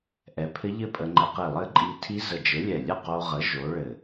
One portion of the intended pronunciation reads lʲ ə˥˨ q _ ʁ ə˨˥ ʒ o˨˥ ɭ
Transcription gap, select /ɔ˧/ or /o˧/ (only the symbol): o˧